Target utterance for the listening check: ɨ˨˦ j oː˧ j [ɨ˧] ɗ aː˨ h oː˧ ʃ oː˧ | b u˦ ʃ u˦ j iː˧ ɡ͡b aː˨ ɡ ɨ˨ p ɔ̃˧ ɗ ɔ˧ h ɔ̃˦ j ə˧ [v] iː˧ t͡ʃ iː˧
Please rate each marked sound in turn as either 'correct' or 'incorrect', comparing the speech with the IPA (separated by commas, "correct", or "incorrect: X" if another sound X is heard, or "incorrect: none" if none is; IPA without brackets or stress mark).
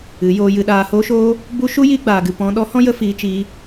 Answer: incorrect: ɨ˨, incorrect: f